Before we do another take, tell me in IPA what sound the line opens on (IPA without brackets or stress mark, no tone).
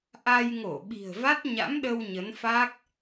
ʔ